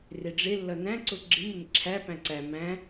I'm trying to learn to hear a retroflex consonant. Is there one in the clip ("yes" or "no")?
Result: yes